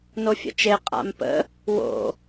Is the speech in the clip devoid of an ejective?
no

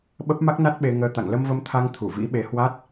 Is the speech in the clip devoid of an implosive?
no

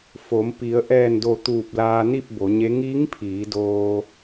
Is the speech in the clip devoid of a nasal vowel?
yes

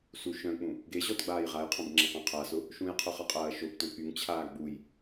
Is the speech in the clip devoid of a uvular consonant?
no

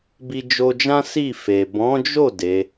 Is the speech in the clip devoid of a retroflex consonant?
yes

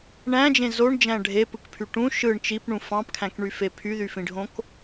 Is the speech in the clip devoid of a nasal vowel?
no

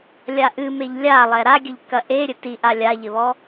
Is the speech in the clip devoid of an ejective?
yes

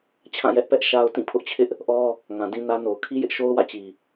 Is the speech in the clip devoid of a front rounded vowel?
yes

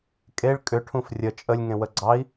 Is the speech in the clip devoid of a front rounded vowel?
no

